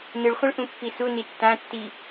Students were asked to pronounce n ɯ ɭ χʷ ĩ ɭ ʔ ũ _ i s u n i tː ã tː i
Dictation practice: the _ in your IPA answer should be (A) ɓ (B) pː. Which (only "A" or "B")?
B